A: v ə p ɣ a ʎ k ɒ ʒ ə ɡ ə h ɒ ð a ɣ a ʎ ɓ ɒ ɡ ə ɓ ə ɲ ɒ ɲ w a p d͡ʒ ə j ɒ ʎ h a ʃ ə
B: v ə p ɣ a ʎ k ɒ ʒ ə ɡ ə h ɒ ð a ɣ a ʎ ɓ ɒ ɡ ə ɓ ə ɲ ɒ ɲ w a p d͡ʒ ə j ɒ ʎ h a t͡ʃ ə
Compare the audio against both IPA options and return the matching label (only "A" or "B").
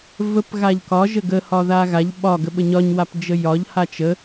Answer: B